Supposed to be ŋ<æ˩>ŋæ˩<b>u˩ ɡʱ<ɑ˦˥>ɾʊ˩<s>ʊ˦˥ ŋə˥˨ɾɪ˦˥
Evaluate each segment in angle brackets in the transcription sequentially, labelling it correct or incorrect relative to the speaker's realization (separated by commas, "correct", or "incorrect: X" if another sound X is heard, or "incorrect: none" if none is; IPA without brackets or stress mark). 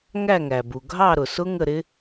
incorrect: æ˥˨, correct, incorrect: ɑ˥˨, correct